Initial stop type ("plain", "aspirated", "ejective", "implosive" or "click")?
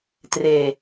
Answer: plain